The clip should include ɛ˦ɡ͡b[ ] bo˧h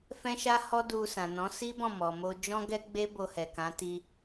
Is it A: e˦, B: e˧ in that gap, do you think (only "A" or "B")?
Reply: A